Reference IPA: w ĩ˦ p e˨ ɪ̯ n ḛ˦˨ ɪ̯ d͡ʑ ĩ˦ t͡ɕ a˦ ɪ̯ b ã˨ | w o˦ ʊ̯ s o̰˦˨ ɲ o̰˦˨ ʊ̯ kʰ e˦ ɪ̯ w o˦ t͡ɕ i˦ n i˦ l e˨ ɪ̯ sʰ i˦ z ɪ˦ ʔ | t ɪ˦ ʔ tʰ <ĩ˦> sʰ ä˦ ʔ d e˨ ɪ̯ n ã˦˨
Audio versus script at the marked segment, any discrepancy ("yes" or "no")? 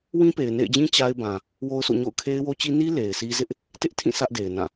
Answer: yes